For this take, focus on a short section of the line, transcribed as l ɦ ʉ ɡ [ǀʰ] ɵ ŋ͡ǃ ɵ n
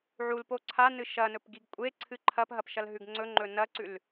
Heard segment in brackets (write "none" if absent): ŋ͡ǀ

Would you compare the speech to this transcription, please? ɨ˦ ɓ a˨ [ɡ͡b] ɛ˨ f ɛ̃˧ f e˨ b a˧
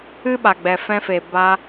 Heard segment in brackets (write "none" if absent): ɡ͡b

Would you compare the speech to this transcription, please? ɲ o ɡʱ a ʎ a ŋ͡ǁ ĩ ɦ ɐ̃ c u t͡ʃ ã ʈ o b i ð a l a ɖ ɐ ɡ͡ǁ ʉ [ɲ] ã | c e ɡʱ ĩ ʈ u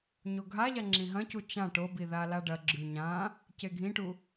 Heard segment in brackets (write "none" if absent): ɲ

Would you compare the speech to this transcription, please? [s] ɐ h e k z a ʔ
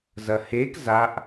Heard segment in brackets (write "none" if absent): z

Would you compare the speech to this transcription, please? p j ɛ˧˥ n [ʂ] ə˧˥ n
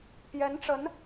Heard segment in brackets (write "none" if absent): ʈ͡ʂ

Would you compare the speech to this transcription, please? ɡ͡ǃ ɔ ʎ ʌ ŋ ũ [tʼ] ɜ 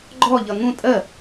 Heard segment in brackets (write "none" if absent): tʼ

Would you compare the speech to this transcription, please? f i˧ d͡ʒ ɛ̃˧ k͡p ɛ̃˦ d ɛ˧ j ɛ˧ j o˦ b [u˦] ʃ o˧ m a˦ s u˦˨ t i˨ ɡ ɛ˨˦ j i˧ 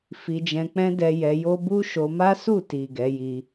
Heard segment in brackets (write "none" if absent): u˦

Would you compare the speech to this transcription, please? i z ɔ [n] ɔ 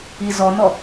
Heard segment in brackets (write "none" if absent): n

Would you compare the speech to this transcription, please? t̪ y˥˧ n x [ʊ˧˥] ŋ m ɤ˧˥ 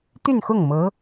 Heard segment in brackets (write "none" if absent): ʊ˥˩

